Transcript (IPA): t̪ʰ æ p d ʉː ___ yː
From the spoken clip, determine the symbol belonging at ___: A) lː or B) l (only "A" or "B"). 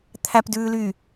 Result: B